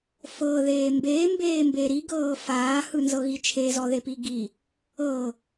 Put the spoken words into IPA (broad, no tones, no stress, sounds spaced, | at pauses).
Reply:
f ɤ ð eː m b eː m b eː m b e ɾ i ɡ ɤː f aː h ɯ n z ɤ ɣ i t͡ʃʰ e z ɔ ð e p i ɡ i | ɤ